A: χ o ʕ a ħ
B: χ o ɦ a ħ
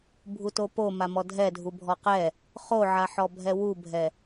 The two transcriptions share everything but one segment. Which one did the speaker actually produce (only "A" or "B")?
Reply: A